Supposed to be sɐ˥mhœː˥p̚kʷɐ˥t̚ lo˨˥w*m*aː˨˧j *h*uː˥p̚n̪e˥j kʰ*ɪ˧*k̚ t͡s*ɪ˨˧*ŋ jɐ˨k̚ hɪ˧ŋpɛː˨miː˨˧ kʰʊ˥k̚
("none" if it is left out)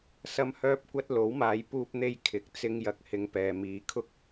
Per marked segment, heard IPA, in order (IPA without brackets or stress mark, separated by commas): m, p, ɪ˨˥, ɪ˥